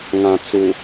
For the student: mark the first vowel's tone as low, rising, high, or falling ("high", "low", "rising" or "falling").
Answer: low